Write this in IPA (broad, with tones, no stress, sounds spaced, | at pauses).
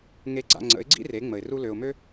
ŋ e˧ ɡ͡ǀ a̰˧ ŋ͡ǀ ə̰˨˦ ɪ̯ ɡ͡ǀ ḭ˦ r e˨˦ ŋ͡m ə˨ ɪ̯ r u˧ l ø˨ ʊ̯ m ø˦